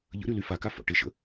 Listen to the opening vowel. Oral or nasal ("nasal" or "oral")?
oral